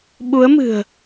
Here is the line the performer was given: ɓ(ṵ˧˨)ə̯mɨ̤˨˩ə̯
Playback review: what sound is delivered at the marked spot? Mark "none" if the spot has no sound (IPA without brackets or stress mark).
u˨˦